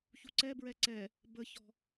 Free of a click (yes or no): no